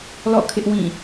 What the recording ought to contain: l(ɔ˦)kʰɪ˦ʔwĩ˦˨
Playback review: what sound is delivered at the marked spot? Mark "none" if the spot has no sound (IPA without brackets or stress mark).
ɔ̰˦˨